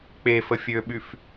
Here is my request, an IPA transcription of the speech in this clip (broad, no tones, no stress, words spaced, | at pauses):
k͡pefə fʲøɓyf